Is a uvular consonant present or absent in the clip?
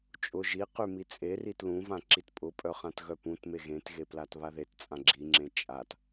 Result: present